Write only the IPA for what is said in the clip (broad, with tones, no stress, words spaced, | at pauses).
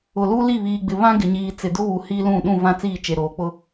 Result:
ʊ˨ lu˦li˦˨βiː˨ɡ͡bɪ˨ βã˦ɡɪ˨ɲiː˨ t͡sɪ˨dʊ˦βu˨ hi˦lũ˦˨ ɗũ˦˨vã˦˨t͡siː˦˨ t͡ʃe˨ ɾoː˨k͡pʊ˦